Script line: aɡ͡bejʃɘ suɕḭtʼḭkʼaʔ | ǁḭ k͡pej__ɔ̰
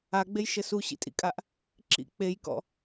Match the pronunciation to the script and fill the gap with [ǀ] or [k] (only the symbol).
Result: k